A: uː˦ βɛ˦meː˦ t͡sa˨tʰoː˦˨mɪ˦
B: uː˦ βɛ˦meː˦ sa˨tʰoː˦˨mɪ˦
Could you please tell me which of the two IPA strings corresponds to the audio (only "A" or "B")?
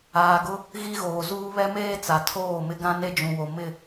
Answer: A